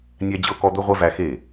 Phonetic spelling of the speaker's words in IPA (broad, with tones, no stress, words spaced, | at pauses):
nʲæ˦d͡ʑɤ˦kɔ˦ d̪ɵ˦ʁʷɛ˦ væ˦xe˥˩